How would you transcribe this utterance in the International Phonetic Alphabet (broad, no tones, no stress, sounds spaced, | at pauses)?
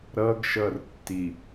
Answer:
ɾ ʌ ɡ ʃ ʌ r tː i